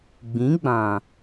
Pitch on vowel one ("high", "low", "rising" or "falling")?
rising